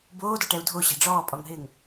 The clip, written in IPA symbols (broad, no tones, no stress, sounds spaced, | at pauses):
b oː d ɔ̤ ʈ ɛ u̯ dʱ o ɕ ɛ̤ ɖ͡ʐ ɔː pʼ ɔ ŋ ɦ ɪː ŋ